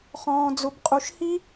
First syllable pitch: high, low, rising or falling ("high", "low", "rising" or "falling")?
low